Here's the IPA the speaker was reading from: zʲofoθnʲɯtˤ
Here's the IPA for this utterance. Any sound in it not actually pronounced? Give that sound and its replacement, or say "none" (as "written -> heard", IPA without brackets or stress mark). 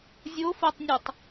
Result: θ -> tˤ